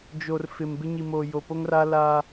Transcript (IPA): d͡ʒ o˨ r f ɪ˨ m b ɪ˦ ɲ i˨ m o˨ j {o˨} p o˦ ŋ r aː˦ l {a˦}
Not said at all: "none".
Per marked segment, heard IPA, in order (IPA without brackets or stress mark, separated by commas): o˨, a˦